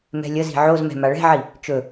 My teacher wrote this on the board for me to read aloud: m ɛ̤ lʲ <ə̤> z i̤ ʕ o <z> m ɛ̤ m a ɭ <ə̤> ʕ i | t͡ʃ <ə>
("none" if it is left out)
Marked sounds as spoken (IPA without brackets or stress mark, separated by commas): ə, z, ɛ̤, ɵ